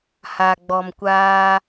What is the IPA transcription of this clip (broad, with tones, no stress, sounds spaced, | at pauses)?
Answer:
h a˨ ɡ͡b ɔ˨ m kʷ aː˦